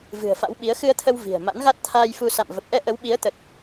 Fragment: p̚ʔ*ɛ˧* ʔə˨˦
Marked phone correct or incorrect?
correct